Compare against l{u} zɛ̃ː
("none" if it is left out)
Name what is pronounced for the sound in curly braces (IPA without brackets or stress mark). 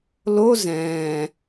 o